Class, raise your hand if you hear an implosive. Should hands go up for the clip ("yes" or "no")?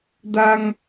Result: no